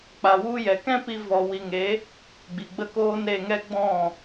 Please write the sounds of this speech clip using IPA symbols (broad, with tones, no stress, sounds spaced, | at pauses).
k͡p a˨ w u˧ j ɛ˨ k ɛ̃˦ p i˧ v ɔ˨ w i˨ ŋ e˨˦ | ɡ͡b i˨ ɡ͡b ə˦ k oː˦ n ɾ e˧ ŋ ɛ˦ ɡ͡b ɔ̃˦˨